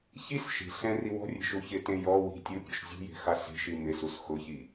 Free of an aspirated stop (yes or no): yes